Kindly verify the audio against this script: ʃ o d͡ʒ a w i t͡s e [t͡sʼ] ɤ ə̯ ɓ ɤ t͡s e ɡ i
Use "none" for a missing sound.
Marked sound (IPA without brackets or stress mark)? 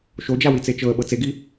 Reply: t͡ʃ